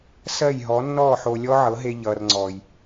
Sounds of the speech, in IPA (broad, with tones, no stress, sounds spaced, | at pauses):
s ɜ˦˨ j ɦ ɔ˨˦ nː ɔː˦˨ ħ o˧ lʲ ɔ˦ ʕ ɤ˨˦ ɦ e˧ ʎ ʌː˨ r ŋ͡ǀ ɔː˨ j